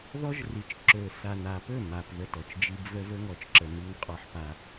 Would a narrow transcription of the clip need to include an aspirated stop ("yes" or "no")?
no